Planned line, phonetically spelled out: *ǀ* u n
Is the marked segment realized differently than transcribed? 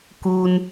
yes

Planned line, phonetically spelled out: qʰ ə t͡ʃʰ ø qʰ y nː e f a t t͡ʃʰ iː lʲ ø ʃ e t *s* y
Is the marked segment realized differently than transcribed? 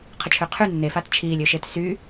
no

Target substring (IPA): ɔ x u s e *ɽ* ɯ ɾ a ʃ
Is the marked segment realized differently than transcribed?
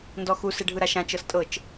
yes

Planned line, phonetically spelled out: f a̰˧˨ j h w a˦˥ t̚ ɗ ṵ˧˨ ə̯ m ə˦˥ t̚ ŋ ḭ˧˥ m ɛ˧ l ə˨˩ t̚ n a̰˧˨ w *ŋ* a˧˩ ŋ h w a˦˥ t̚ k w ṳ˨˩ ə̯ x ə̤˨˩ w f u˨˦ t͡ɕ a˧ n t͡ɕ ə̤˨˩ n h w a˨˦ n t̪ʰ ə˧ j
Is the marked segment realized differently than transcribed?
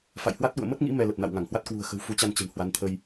no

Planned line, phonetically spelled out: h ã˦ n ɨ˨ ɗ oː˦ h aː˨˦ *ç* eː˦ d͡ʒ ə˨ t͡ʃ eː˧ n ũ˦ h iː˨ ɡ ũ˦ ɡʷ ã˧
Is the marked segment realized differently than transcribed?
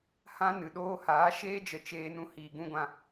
yes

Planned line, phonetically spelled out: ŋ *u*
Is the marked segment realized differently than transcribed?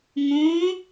yes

